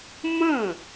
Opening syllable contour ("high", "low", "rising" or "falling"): falling